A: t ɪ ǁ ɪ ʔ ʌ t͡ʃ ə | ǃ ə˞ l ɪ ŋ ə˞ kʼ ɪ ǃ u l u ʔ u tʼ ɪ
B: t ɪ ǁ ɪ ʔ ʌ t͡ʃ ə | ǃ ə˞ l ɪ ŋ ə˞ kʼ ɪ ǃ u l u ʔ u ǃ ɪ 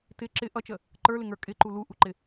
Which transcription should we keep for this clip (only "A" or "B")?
B